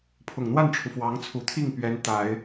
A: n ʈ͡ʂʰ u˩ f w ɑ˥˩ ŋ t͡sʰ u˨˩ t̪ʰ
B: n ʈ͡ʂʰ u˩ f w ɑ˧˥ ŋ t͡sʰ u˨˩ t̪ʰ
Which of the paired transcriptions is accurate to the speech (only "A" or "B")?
B